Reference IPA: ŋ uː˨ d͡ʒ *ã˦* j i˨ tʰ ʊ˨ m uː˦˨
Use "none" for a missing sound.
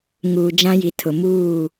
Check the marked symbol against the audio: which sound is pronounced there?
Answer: ã˦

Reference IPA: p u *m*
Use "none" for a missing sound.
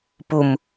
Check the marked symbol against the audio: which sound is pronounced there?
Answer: m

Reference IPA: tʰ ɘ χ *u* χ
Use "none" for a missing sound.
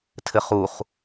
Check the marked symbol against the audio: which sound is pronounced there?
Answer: u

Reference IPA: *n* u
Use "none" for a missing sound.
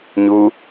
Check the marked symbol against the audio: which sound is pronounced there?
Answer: ɲ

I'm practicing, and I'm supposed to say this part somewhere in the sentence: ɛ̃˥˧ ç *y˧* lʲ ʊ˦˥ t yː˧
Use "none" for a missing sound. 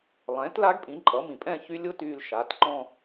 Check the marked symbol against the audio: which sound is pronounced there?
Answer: y˦˥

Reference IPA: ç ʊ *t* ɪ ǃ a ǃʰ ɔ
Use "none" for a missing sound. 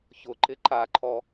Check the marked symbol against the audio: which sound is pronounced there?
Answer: ǃ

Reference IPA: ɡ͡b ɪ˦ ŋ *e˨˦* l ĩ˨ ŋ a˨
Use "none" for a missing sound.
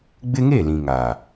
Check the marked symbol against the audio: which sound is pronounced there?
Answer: e˦˨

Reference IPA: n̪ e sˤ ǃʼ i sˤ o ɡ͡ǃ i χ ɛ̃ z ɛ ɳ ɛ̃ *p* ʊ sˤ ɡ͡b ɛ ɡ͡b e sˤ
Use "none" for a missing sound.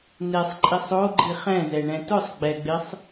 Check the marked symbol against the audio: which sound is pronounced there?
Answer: t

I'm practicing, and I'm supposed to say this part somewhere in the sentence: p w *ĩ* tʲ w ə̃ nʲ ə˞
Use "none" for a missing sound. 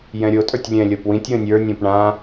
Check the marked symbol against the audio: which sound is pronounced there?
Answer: ĩ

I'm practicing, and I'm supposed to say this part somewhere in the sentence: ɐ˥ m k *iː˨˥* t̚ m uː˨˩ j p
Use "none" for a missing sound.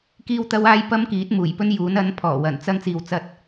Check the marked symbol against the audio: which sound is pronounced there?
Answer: iː˨˥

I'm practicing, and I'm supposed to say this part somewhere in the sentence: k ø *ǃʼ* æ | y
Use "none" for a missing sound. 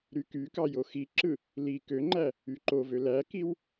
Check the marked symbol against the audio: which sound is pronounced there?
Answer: ŋ͡ǃ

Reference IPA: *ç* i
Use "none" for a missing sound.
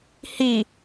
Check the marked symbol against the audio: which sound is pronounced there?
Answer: h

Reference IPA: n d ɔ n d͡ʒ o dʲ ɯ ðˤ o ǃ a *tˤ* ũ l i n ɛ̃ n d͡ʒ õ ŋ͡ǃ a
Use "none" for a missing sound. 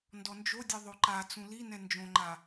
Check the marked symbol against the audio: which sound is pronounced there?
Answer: t͡s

